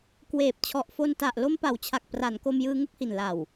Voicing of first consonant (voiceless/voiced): voiceless